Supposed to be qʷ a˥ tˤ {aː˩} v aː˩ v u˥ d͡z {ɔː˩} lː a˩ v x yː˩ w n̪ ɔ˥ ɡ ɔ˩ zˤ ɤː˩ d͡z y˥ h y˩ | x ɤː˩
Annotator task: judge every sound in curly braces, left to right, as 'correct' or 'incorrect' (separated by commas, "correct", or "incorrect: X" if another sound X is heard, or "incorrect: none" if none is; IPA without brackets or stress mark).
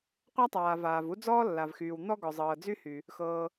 correct, incorrect: ɔː˥